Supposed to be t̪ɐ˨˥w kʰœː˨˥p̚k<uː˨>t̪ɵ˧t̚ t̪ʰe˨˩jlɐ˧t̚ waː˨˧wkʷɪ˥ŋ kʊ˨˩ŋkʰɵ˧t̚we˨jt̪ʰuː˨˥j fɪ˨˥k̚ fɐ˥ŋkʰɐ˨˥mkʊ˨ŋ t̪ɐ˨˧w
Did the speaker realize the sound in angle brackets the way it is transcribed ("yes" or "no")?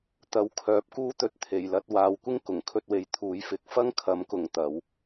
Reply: no